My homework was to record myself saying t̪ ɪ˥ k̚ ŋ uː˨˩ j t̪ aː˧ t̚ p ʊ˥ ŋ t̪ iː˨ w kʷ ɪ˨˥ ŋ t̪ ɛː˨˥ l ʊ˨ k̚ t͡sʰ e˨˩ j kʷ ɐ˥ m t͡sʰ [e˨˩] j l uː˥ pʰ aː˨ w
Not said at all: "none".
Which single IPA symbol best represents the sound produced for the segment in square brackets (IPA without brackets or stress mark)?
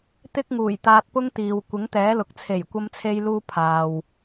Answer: e˥